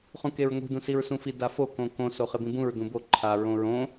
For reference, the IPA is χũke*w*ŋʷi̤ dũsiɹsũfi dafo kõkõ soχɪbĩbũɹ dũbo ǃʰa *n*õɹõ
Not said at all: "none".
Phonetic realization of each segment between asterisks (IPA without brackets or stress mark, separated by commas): ɹ, ɹ